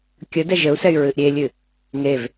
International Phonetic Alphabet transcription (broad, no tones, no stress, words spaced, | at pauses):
kʲədɛ ʒəu̯sɛy̯ ɹɨʔɾʲelʲɨ | ŋev